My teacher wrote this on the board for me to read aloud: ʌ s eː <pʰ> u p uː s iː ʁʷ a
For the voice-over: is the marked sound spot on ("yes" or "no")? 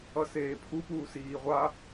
yes